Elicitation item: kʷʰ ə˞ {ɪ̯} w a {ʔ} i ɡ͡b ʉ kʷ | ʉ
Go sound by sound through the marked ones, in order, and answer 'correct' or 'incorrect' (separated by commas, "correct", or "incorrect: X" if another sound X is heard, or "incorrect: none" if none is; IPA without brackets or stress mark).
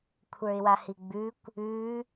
correct, incorrect: h